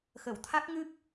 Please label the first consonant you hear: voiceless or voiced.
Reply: voiceless